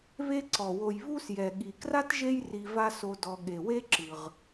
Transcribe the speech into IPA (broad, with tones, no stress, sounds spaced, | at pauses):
β e˦ ǀ ɔ˩ w o˨ j β u˥ s j ɛ˩ ɠ i˩ k r a˥ t ʒ e˦ j r i˨ v a˦ s o˨ d ɔ˨ ɠ e˩ w e˥ ǁ ɯ˩ ʁ